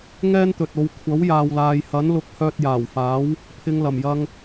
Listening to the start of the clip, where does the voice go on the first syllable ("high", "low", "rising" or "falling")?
high